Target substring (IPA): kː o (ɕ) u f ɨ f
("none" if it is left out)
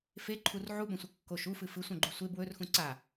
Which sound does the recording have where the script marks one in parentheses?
ʃ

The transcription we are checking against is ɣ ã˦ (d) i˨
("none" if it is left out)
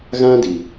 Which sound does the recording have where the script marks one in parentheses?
d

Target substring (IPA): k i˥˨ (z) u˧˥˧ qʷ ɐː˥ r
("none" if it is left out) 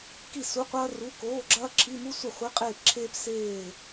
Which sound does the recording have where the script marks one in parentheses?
s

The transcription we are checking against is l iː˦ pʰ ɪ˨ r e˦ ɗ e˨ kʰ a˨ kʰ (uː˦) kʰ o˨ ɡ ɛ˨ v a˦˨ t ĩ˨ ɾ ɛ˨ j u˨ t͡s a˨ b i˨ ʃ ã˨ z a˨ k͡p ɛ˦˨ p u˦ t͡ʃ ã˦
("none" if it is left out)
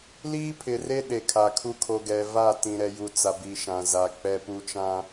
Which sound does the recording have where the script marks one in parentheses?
u˦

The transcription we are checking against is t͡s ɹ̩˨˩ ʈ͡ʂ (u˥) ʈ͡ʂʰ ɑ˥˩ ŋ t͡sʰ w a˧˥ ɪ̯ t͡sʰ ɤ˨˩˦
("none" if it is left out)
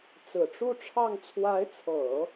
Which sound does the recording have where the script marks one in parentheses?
u˥˧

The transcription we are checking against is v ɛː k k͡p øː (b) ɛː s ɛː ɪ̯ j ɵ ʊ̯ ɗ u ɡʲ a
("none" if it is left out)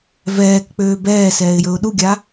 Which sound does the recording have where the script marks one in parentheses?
b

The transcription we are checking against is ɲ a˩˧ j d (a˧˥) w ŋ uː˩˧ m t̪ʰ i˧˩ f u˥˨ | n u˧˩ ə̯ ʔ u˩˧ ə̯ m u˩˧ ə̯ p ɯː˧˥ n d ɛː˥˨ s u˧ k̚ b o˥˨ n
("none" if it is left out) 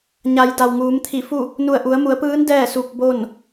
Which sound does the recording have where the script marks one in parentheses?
a˩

